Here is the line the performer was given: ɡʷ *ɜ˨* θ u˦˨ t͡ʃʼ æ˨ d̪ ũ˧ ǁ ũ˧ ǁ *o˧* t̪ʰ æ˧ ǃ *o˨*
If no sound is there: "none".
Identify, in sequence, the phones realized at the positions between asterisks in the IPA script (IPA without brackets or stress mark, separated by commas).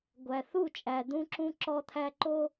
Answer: æ˨, ɔ˧, o˧